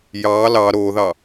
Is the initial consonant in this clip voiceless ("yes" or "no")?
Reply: no